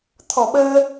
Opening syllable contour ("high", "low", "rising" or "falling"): low